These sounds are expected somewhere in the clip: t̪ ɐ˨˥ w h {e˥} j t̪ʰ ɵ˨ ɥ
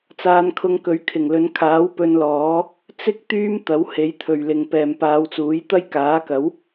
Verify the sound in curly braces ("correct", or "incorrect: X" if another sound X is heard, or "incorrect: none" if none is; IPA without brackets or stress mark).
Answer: incorrect: e˨˥